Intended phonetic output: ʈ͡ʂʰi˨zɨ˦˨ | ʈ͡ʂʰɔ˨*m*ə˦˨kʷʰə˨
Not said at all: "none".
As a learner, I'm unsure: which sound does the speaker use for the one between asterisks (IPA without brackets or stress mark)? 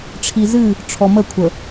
m